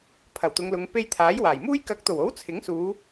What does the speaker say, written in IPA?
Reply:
pʰ ɐ˨˩ w t̪ ʊ˨˧ ŋ l ʊ˨˧ ŋ p e˧ j t̪ʰ aː˨˥ j w aː˨˩ j m uː˥ j k ɐ˨˥ k̚ t̪ o˨˩ w o˨˥ w t͡sʰ ɪ˨˥ ŋ s uː˨˧

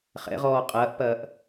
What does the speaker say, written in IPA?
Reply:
χ ɛ̰ ʁ ɔː qʼ ɐː ʔ p ɐː ʔ

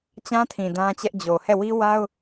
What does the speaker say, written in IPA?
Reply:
t͡ɕ ã˦ tʰ ĩ˨ d ã˦ t͡ɕ ɛ˦ ʔ d͡ʑ o˨ h ɛ˦˨ w i˦ w a˦ ʊ̯

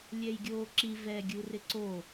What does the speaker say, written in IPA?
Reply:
lʲ ɛ j ɡʲ oː ǁ i v ɛ ɡʲ u r ɪ ǀ o

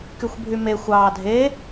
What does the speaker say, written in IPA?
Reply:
k y xʷ bʱ y m e xʷ ɑː dʱ e

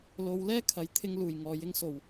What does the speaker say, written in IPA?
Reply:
l o˨˧ w l ɛː˥ kʰ ɐ˨˥ j t̪ʰ ɪ˧ ŋ l uː˨ j ŋ ɔː˧ j ɪ˥ ŋ s o˨ w

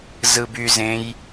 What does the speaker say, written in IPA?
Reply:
z ɯ b y z ẽ j

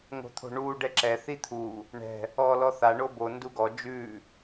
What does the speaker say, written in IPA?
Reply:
ŋ o̤ t̪ʰ o̤ ɳ uː ɖ ɛ ǁ ɛ θ i t̪ʰ u | ɳ ɛ̤ | ɔː l ɔ θ a ɳ o b o n d u ɡ ɔ d͡ʒ ʉː

